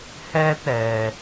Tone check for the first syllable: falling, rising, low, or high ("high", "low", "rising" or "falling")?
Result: high